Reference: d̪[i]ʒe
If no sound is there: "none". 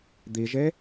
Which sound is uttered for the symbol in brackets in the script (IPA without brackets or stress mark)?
i